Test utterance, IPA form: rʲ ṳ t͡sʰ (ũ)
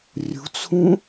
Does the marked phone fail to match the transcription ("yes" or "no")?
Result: no